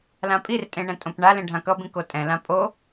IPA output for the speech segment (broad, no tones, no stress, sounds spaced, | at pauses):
l ã pʼ i r tʼ ẽ ɳ ɛ̃ tʼ õ p ɳ a l ẽ ɖʱ ã k ʌ b ĩ k o tʼ ɛ̃ l ã pʼ o